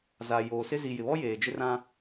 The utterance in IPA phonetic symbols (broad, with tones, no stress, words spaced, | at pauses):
za˨ joː˨sɪ˦ zi˨jɪ˨βɔ˦ jeː˨d͡ʒɪ˦rã˦